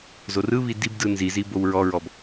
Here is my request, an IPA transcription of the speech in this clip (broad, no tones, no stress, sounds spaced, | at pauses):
z o r ɯ β i d i b d ɯ n z i z i b o w ɹ ɔ ɹ ɔ b